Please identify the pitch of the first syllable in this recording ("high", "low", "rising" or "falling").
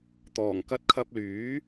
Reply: low